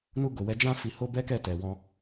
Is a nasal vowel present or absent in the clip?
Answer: present